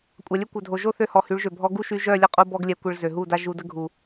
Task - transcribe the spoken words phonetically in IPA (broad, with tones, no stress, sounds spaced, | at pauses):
kʷʼ a˨ lʲ ø˦ kʷ œ˨ dʱ o˨ ʒ o˦ θ ø˧ h ɔ˨ h y˨˦ ɭ ʒ ø˨ bʱ ɔ˧ ɡ u˦ ʃ y˧ ʒ œ˦˨ lʲ ə˦˨ qʼ u˧ b ɔ˦ ɡ lʲ ɛ˧ kʷ ə˧ ɭ z ø˨ ɦ u˦˨ d a˦ ʒ u˧ d ə˦ ɡʱ u˨